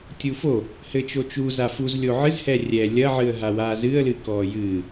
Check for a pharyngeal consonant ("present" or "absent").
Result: present